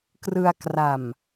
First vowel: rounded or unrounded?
unrounded